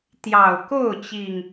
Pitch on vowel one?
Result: low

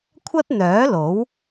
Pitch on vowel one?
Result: high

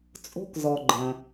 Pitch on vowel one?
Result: high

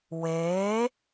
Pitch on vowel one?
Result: rising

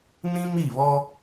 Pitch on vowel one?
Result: high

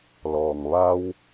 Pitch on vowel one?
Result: low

